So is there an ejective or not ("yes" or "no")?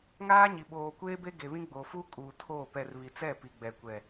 yes